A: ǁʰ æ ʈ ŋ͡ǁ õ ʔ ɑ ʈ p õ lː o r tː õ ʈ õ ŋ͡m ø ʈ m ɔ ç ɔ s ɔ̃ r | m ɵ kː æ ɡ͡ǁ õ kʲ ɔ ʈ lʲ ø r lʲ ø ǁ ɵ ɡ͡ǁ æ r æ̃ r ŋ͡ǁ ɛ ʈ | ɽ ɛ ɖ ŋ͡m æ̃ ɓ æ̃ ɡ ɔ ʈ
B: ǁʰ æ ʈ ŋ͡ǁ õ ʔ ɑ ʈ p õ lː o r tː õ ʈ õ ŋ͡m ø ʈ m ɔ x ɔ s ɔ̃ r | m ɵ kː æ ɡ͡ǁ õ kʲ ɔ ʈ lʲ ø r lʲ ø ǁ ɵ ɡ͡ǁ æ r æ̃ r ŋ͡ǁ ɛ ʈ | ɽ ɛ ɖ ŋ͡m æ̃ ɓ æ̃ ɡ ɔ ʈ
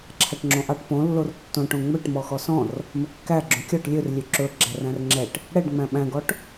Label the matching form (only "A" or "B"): B